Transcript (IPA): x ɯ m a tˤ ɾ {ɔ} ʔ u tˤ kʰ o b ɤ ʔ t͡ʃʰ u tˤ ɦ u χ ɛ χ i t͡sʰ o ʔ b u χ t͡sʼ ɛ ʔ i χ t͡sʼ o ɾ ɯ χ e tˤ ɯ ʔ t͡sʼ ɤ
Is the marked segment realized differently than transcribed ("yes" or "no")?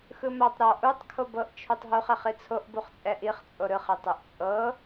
no